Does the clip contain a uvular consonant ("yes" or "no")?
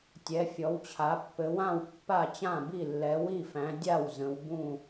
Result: no